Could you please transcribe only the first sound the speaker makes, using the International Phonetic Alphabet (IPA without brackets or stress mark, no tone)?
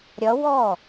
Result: ɾʲ